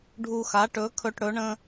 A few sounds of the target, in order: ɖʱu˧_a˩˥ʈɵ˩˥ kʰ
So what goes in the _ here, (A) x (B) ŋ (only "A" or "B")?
A